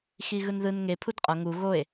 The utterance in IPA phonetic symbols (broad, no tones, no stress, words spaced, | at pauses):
xiɣɯnðɯn ŋe pʰudqʼʌ ŋu ɣoe̯